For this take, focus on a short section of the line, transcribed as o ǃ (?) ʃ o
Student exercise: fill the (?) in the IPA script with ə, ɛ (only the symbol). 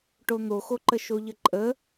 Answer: ə